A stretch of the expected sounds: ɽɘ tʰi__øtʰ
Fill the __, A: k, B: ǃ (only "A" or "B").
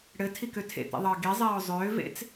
A